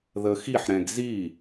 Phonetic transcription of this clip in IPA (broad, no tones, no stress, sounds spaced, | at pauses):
ð ə x i ħ ɾ ɛ̃ ɡ z i